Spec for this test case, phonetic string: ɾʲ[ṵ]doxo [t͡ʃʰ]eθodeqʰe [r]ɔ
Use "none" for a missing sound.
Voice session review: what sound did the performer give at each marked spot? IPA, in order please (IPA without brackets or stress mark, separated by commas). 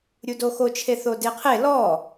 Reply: u, t͡ʃʰ, l